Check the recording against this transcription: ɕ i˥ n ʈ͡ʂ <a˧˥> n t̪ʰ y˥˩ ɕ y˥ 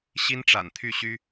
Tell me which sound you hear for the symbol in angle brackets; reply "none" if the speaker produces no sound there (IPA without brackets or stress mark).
a̰˨˩